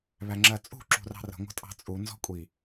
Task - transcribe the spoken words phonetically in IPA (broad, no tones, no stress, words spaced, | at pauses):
βæŋ͡ǁɜt͡sʼṳ ǁṳrɑ̤rə̤ ŋʷə̤tʼɑ̤t͡sʼu nzɔ̤kʷʼi